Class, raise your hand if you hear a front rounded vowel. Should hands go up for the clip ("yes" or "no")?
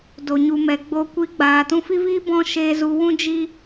no